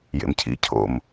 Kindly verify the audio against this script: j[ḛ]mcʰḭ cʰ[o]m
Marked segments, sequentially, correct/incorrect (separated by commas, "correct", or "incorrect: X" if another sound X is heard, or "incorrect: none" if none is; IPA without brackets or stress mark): correct, incorrect: o̰